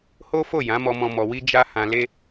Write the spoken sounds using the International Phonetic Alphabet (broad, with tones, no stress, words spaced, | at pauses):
ho˦fo˦˨ jã˨˦mɔ˧mɔ̃˧ mɔ˨wi˧ d͡ʒa˦ hã˧le˦